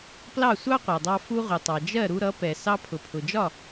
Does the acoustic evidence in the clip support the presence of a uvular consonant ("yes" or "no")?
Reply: yes